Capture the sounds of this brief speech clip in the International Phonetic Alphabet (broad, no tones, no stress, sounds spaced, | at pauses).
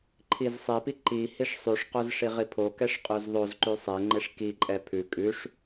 ǃʰ i z sˤ e p i ǃ i h i ʂ sˤ ʉ ʂ q o z ʂ i ʁ i pʰ o k ɛ ʂ qʼ ʉ z ðˤ o z ǃ ʉ sˤ e ŋ͡ǃ e ʂ k i ǃʼ ɛ pʰ ʉ kʼ ʉ ʂ